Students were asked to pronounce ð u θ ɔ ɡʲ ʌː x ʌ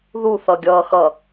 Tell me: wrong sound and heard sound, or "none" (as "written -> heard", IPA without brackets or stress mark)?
ɔ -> ʌ